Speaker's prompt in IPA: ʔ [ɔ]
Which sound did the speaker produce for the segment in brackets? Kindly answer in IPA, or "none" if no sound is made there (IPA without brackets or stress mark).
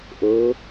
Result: ɤ